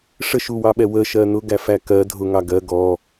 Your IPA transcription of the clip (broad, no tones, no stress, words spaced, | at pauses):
ʂəʃuwɑɓɛ wə ʃɜnʊ ɡæfækɜ dʱʊŋɑ ɡɜ ɡɔ